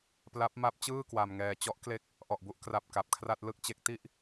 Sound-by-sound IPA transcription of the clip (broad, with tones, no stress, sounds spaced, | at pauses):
p l a˦˥ p̚ m a˦˥ p̚ t͡ɕ ɯː˥˩ k w a˧ m ŋ ɛː˧ t͡ɕ ɔ˦˥ ʔ k l e˦˥ k̚ | ʔ ɔ˨˩ ʔ b u˥˩ ʔ k r a˨˩ p̚ k a˨˩ p̚ kʰ r a˥˩ t̚ l ɯ˥˩ k̚ t͡ɕ e˦˥ k̚ t i˥˩ ʔ